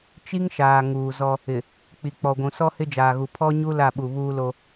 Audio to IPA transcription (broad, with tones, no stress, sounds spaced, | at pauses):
t͡ʃ i˦ ŋ ʃ aː˨ ŋ uː˨ z ɔ˦ | ɪ˨ | k͡p i˨ k͡p ɔ˨ ɡʷ ũ˨ s ɔ˦ h ɪ˦ d͡ʒ aː˨ ɣ u˨ pʰ ɔ˦ ɲ u˦ l a˦˨ ɓ u˨ β uː˦ l o˦